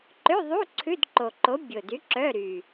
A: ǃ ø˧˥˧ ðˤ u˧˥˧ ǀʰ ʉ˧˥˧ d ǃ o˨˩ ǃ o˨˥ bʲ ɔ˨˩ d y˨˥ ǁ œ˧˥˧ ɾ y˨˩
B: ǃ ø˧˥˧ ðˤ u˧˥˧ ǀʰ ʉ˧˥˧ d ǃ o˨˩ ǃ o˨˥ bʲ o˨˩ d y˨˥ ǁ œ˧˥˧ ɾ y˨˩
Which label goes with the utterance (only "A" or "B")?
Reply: B